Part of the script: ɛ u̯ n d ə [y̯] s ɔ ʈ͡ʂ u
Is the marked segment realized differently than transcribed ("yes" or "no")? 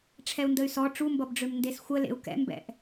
no